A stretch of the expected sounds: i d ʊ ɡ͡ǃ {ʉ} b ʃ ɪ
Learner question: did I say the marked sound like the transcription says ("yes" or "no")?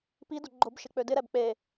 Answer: no